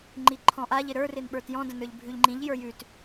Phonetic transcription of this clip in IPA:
ŋ͡ǃ i ǃʰ ɔ̃ ʔ a ʎ ɪ ɾ ə˞ r ɪ n ɓ ə˞ t j ɔ̃ d ə̃ n ə˞ ʎ bʱ ʉ ʎ ŋ͡ǃ ĩ ʎ j ə˞ j ʉ t

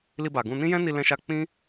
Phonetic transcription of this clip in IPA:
l i˧ b a˨ ɡ ũ˧ n ĩ˦ j ɛ̃˦ n i˧ l ɛ̃˧ ʃ a˧ k͡p ĩ˦

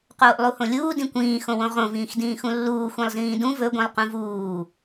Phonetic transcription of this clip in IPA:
q oː ʔ lˠ u h õ lʲ uː d ĩ kʷ ĩː x õ w õ ʁ õ v ĩː x d ĩː x ũ lː uː xʷ ĩ lˠ z ĩː d ũ v ɵ ɡʷ ĩ lˠ q ũ v uː

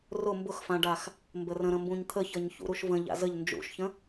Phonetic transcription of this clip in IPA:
r ʊ m b ʊ x f ã ɖ a x | m b ə r ə̃ ɾ ə̃ m b ũ ɲ t̪ʰ ə ç ʌ ɲ ç ṵ ɾ u ʃ v ə̃ ʎ a̰ z ə ʎ n d͡ʒ ṵ ʃ ç ə̃

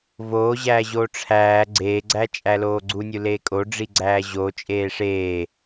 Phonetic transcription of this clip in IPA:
v oː ʑ æː ʑ oː ʈ͡ʂʰ æː ɡ͡ǀ eː ɡ͡ǀ æ t͡ʃʼ æ l oː ɡ͡ǀ u nʲ u l eː kʼ o ɖ͡ʐ i ɡ͡ǀ æː ʑ o t͡ʃʼ eː ʂ eː

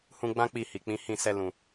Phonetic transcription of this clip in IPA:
h ũ˧ ɡ͡b ã˦ k͡p i˦˨ h i˨ k͡p ĩ˨˦ h ĩ˦˨ s ɛ˧ l ũ˨

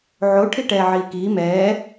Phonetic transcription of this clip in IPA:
ʕ o ʈʰ i ʈ ɛː ʕ iː k iː m ɛː

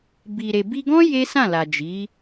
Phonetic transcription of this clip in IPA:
b i˨ ɾ e˨ b i˧ ɡ ɔ̃˦ j e˦ s ã˦˨ l a˨ d͡ʒ i˨˦

